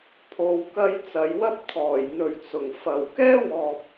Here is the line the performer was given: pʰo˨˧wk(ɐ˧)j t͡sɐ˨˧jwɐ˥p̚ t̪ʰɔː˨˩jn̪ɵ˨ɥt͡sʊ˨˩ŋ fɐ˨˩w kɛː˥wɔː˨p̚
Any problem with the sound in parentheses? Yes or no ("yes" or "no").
no